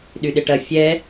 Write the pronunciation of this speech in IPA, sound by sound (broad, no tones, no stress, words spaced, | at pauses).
ɗyɗɪʈɐ fʲɛ